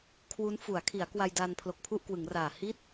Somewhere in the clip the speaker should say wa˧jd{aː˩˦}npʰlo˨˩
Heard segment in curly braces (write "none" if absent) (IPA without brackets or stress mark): aː˧